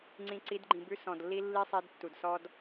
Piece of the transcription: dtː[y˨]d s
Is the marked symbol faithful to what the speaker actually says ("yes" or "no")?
no